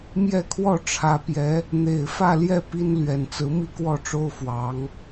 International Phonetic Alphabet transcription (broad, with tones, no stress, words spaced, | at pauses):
mjɛ˥˧kʰwɔ˥˩ʈ͡ʂʰä˧˥pjɛ˧˥ | n̪e˨˩ɪ̯fä˥˧ljɛ˥˩ pi˥n lɥɛ˨˩nt͡sɹ̩˧˥ mi˥˧kwɔ˥˩ʈ͡ʂo˥ʊ̯ fwɑ˧˥ŋ